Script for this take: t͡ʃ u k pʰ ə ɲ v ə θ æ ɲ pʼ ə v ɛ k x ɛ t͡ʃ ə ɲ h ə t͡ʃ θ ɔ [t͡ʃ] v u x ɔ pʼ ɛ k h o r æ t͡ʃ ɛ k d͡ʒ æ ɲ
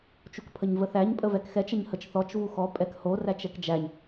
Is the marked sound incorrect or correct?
correct